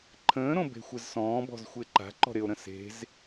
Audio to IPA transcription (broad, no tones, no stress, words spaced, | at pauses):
ǃʰə̃ːɾõ be̤xʷɪzsɔ̃ːbɔ̤z xʷɪːǃa̤ǃɔ̤ ɾɪo̯ɾə̃ se̤z